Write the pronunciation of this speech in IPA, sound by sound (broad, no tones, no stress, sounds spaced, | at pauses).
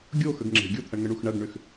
ɡʲ o x ə ɡ ŋ͡ǁ e̤ ɡʲ o t̪ʰ ɐ ɳ ŋ ə ɳ u x ɳ ɐ ɡ ɳ ʏ x